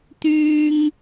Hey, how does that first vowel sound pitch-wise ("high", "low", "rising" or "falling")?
high